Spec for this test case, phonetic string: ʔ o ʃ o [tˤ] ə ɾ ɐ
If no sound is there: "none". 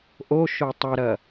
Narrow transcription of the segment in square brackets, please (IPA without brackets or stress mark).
tˤ